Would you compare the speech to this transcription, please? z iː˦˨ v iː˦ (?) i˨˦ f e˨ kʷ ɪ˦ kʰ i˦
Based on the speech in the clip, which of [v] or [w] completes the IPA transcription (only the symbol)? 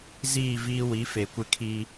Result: w